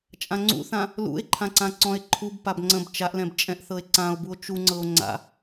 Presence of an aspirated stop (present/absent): present